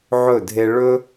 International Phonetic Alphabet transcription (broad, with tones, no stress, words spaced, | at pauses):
ʕɵ˥˩dʱe˦ ɭɵ˦